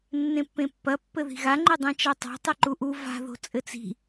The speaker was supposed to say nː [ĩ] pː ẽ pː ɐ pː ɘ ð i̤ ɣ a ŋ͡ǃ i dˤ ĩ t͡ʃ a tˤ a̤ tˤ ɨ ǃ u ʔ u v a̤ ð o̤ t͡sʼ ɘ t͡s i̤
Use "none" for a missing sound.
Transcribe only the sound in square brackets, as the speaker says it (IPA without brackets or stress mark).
ẽ